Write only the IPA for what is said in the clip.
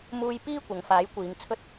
m uː˧ j p iː˥ kʷ ɐ˨˧ ŋ f aː˨˥ j kʷ iː˨˧ ŋ t͡sʰ ɵ˧ t̚

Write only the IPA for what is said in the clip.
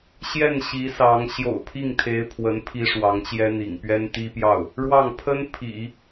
ɕ j ɛ˥˩ n ɕ i˧˥ s ɑ˧˥ ŋ ɕ j o̰˨˩ ʊ̯ pʰ i˥˩ ŋ t̪ʰ e˧˥ ɪ̯ pʰ w ə˧˥ n pʰ i˥ ʂ w ɑ˧˥ ŋ t͡ɕ j ɛ˥ n̪ ḭ˨˩ ŋ p ɥ ɛ˥ n t̪ i˥ p j ɑ˥˩ ʊ̯ | ɻ w ɑ˥˩ ŋ pʰ ə˥ n pʰ ḭ˨˩˦

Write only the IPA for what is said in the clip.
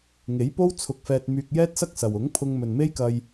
ŋ e˨˥ j p o˥ w t͡sʰ ʊ˧ k̚ f ɛː˧ t̚ m yː˧ k̚ j ɛː˥ t̚ s ɐ˥ k̚ s ɐ˨ w ʊ˨˥ ŋ pʰ ʊ˧ ŋ m ɵ˨ n m e˥ j k ɐ˧ j

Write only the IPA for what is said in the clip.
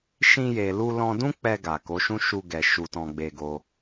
ʃ ĩ˧ j e˨ l u˧ l ɔ̃˧ d ũ˦ k͡p ɛ˧ ɡ a˨ k o˨˦ ʃ ũ˦ ʃ u˧ ɡ ɛ˨ ʃ u˧ t ɔ̃˧ ɡ͡b e˧ ɡ o˧

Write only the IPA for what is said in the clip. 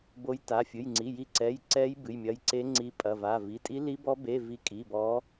b o˨˦ j t a˩˧˩ fʲ ɨ˩˧˩ j ŋ͡ǀ i˩˧˩ j i˨˦ ǀ ɛ˩˧˩ j ǀ ɛ˨˦ j b ɨ˩˧˩ j mʲ ɐ˨˦ j ǀ e˨˦ ŋ͡ǀ i˨˦ pʼ ɐ˩˧˩ v a˩˧˩ v i˩˧˩ tʼ i˨˦ l i˨˦ b ɔ˨˦ b e˩˧˩ v i˨˦ kʼ i˩˧˩ b ɔ˨˦

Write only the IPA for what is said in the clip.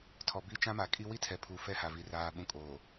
tʰ ɔ˨ b i˦ t͡ʃ ã˦ m a˨ kʼ i˦ w i˦ tʰ ɛ˨ pʰ u˨ f ɛ˦ h a˨ v i˨ r aː˨ ɓ ũ˨ kʼ oː˨

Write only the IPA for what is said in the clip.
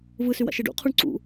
v ɯ s y w a̰ ʃ e ɖ ṵ qʰ u ɳ ǀ ṵ

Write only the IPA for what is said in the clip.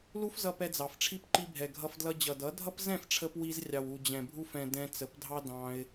l u˦ f z ʌ˧ p ɛ˧ d͡z ɑ˨ f ʈ͡ʂʰ i˦ p ǃ i˧ bʱ ɛ˨ ɡʱ ʌ˧ f d l ʌ˧ d͡ʑ ʌ˨ d ʌ˨˦ dʱ ʌ˦ p z ɛ̃˦˨ f ʈ͡ʂʰ ə˧ p w i˧ z rʲ ɑ˨ w u˨ d͡ʑ ɛ̃˨ bʱ u˧ f ɛ̃˨ d ɛ̃˧ t͡s ə˨˦ p dʱ ɑ˦ d ɑ̃˧ ɪ̯

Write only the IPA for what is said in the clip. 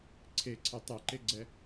ǀʰ e ǀʰ e tˤ ɛ ǃ e ɡ͡ǀ ɛ

